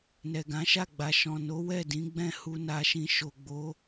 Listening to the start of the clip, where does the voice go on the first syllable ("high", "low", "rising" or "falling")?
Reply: low